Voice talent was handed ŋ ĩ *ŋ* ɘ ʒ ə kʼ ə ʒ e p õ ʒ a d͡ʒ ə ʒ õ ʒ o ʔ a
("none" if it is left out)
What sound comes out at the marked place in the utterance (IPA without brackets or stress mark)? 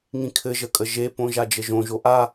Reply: kʰ